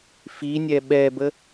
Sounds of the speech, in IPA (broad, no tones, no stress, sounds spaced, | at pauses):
f i nʲ ɛ ɓ ɛ b ə